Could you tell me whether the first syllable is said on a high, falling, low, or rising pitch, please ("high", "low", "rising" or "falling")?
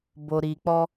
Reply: low